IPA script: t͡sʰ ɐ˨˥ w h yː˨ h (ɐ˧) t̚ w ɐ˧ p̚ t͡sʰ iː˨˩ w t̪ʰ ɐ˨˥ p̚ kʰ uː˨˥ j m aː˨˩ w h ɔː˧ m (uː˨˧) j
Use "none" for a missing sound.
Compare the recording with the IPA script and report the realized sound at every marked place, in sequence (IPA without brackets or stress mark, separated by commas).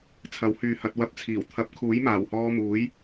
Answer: ɐ˧, uː˨˥